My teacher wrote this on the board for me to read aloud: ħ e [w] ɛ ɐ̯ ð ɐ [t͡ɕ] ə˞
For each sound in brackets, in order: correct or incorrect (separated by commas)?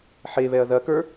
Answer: incorrect, incorrect